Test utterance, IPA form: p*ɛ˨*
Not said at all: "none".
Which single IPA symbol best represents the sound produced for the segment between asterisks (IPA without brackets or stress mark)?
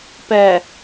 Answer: ɛ˨